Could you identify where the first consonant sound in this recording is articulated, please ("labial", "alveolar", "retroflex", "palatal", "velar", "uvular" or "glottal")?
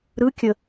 alveolar